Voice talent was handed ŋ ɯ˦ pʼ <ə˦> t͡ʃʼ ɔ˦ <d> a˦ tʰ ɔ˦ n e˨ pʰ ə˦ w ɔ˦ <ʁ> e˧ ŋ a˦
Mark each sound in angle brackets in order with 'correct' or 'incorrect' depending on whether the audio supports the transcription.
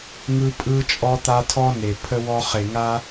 incorrect, incorrect, incorrect

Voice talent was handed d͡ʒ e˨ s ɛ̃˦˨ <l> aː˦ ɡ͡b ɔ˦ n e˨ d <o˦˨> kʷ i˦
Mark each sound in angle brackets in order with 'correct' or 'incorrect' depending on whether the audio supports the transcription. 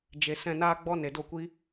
incorrect, correct

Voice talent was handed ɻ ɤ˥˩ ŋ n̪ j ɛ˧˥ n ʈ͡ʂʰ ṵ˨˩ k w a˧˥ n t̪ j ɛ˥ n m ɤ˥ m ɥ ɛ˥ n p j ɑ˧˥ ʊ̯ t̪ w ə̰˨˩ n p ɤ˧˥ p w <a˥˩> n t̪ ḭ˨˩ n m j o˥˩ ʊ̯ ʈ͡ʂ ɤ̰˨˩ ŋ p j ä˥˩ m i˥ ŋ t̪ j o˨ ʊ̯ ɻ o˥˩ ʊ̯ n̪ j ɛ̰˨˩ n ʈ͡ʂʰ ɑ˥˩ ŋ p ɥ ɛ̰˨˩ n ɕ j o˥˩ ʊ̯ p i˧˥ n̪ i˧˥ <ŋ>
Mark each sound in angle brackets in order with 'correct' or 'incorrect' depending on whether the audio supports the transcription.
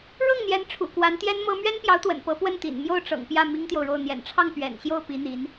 incorrect, incorrect

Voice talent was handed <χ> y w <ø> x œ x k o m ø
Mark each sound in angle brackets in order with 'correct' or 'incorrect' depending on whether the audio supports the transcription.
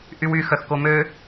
incorrect, incorrect

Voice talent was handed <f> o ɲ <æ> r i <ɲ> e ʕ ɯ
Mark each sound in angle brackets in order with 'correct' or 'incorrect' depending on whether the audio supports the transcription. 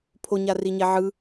incorrect, incorrect, correct

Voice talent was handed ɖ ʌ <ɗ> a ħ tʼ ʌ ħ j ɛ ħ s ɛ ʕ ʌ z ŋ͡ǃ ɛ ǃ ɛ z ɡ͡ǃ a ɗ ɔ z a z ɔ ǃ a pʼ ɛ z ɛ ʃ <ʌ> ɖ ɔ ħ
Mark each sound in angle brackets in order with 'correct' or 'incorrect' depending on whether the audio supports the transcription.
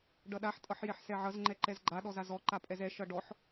correct, correct

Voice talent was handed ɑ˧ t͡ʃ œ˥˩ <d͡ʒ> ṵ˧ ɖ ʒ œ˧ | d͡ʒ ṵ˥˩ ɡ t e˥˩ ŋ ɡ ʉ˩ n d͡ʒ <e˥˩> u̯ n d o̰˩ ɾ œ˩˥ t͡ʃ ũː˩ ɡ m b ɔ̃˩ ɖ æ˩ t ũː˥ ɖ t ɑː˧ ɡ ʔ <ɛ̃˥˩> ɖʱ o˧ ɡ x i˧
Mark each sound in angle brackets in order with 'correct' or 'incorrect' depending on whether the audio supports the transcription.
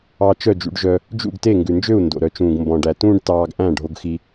correct, incorrect, incorrect

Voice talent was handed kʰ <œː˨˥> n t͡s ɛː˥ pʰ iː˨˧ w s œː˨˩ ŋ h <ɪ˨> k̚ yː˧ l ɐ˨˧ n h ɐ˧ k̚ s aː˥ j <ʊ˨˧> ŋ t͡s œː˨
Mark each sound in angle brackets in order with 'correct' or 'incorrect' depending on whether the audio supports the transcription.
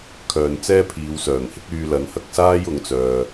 incorrect, incorrect, correct

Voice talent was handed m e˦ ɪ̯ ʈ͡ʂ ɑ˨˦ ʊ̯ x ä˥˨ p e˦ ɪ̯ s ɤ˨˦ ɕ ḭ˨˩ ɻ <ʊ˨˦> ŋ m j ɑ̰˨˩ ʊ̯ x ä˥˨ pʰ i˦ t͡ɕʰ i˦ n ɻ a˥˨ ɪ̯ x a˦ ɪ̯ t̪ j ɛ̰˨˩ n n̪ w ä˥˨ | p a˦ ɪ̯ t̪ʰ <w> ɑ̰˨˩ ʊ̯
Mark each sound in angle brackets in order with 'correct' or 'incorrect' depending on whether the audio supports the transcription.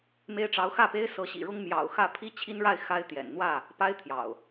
incorrect, incorrect

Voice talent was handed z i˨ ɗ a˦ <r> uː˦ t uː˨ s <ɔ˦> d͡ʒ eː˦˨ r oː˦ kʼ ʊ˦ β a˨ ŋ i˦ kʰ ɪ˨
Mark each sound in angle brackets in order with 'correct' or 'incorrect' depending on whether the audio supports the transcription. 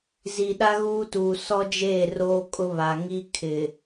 incorrect, correct

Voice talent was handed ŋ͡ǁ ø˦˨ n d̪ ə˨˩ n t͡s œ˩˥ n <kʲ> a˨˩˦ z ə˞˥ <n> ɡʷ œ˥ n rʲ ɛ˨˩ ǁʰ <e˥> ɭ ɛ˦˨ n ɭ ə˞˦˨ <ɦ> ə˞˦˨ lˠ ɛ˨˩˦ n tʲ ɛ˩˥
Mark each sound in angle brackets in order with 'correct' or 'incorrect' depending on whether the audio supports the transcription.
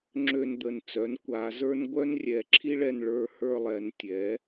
incorrect, correct, incorrect, incorrect

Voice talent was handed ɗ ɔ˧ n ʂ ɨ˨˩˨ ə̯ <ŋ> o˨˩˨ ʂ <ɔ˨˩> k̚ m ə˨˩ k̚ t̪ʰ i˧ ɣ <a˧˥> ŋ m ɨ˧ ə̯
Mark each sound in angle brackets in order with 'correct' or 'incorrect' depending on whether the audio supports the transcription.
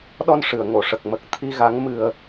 correct, incorrect, correct

